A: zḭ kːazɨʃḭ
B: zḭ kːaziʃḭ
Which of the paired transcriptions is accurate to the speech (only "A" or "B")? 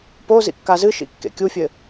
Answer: A